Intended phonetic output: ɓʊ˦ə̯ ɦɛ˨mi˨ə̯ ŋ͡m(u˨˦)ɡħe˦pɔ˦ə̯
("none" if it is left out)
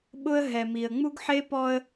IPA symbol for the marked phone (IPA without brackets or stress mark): u˦